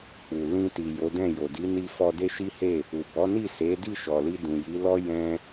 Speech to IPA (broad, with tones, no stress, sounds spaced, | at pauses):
k͡p u˨ l ĩ˧ t i˨ j o˨˦ d ɛ̃˦˨ j o˨ d i˨˦ n i˧ f ɔ˧ d e˦ ʃ i˦ h e˦˨ | u˨ b ɔ˨˦ n i˦˨ s e˨˦ d i˦˨ ʃ ɔ˨ l i˧ d ũ˨ j i˨˦ l ɔ˦ j ɛ̃˧